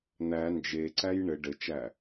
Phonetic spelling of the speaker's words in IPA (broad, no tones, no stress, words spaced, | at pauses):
n̪æ nd͡ʒeǀæj ɳɘ ɖɘt͡ʃæ